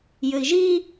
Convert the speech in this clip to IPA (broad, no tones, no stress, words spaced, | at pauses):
jɘi̯ʒi